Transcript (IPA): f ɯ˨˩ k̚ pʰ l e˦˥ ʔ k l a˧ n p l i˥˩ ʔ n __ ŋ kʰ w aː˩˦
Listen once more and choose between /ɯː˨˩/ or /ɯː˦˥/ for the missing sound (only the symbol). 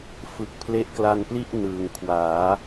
ɯː˨˩